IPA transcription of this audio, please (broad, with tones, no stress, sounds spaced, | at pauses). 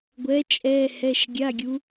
ɡʷ ɛ˨˦ t͡ʃʼ ɛ˧˥˧ h ɛ˧˥˧ ʃ ɡʲ a˧˥˧ ɡʲ u˨˦